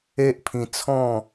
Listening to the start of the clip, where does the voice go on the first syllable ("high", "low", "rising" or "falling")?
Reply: high